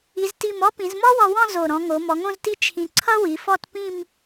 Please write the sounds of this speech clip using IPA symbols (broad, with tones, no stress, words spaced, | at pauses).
i˩˧zti˧˩mɔ˥ pĩ˩˧zmɔ˥wɔ˧wɔ̃˥˧ zo˧˩ ɾɔ̃˩˧ŋo˩˧ mɔ˩˧ŋõ˥˧zti˥˧ t͡ʃʰĩ˧ ǀʰʌ˥wi˩˧fɔ˥˧tpĩ˥˧m